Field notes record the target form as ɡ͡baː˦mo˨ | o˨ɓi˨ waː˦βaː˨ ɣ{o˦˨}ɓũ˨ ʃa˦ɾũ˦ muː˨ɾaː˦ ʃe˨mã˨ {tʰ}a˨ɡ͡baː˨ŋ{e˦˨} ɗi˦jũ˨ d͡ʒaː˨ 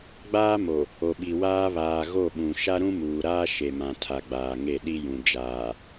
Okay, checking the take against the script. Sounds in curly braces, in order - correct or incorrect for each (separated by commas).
correct, correct, correct